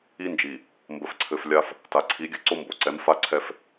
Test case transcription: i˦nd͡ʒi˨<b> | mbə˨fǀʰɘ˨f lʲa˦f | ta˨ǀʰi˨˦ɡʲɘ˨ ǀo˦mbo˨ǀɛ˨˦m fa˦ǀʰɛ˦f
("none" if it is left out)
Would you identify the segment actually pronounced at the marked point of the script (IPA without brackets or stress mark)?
none